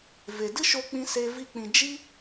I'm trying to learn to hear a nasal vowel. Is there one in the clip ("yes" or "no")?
yes